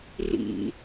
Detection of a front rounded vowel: absent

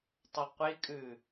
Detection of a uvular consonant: present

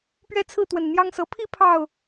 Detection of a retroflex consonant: absent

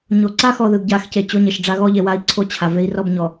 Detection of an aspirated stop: present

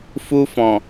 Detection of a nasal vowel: present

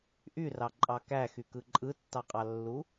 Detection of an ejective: present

